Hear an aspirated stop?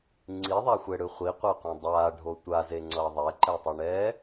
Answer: no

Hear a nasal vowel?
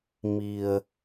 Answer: no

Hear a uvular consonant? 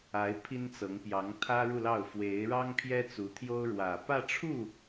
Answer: no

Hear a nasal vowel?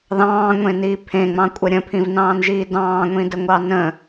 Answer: yes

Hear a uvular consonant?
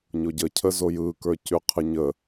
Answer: yes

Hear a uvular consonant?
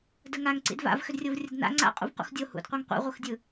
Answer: yes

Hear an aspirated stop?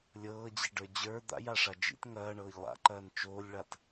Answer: no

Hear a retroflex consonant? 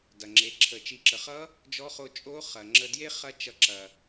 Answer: no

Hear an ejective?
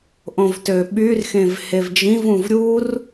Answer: no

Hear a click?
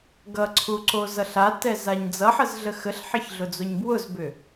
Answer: yes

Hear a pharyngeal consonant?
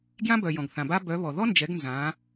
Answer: no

